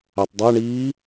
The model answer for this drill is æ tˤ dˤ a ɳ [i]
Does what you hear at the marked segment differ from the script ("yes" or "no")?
yes